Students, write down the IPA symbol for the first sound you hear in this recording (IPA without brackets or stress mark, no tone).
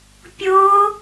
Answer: pʲ